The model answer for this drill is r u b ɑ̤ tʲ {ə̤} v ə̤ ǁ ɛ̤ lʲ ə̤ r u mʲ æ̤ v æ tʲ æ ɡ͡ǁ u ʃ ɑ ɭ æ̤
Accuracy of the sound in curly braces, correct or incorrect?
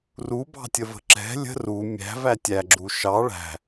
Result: incorrect